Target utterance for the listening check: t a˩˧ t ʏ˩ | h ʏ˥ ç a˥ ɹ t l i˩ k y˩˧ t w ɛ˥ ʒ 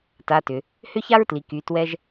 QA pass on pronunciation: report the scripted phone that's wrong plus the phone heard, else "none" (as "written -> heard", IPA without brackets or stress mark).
none